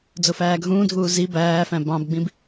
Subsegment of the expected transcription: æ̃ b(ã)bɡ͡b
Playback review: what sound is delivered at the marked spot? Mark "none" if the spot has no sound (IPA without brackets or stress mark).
ɑ̃